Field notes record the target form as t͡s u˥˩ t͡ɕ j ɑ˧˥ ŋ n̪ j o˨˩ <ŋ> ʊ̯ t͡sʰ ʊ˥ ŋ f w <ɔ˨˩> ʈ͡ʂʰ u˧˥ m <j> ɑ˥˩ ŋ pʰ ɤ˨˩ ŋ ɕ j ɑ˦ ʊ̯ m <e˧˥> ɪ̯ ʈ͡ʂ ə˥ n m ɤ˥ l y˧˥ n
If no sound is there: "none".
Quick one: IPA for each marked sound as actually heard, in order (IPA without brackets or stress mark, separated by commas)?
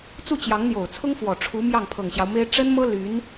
none, ɔ˨˩, j, e˥